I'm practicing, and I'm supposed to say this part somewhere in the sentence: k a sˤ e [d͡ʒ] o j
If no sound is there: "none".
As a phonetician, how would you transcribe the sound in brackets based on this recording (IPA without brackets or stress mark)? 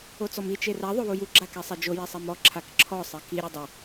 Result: d͡ʒ